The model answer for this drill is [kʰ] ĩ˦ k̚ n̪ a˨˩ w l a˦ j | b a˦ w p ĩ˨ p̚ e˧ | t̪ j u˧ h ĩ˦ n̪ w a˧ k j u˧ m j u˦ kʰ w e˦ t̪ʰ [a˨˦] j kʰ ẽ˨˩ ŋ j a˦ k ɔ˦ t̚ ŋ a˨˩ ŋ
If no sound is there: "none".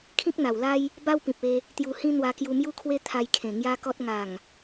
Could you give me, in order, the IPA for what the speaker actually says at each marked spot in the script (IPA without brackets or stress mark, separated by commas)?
kʰ, a˧